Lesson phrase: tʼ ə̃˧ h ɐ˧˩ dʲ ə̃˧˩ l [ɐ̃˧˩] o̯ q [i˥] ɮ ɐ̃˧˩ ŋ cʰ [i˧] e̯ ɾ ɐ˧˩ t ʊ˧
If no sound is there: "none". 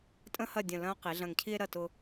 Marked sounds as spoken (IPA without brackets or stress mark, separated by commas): ɐ̃˥, i˩˧, i˧